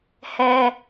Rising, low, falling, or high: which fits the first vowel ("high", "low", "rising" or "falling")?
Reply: high